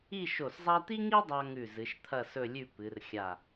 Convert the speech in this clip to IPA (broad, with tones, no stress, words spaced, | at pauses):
i˥˧ʃo˧˩szˤa˥ t̪i˥ŋi˥dˤa˧ ŋʉ˧˩zɨ˩˧ʃ t̪ʰɐ˥˧sɵ˥˧lʲʉ˥˧ pɨ˩˧r xʲa˧˩